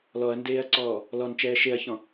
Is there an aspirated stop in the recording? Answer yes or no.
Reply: no